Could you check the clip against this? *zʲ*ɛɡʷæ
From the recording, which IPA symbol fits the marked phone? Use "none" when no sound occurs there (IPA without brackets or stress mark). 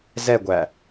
z